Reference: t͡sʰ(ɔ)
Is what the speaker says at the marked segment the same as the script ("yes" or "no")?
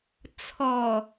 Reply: yes